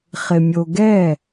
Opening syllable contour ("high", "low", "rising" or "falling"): low